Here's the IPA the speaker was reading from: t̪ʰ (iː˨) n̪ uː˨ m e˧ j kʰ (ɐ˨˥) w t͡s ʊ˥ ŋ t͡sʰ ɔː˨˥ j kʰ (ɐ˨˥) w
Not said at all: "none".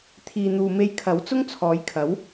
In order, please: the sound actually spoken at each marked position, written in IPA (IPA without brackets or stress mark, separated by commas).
iː˨, ɐ˨˥, ɐ˨˥